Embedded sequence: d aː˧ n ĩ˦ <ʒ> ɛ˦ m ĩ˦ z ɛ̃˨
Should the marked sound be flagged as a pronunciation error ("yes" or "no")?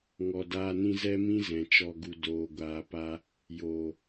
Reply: yes